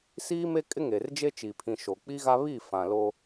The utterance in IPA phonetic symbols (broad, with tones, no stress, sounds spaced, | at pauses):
s iː˦ m e˦ kʼ ɪ˦ ŋ e˨ r d͡ʒ e˦ t͡ʃ i˨ pʰ ĩ˨ ʃ o˨ k͡p i˦ ɣ a˦ β i˦˨ f ã˨ l o˦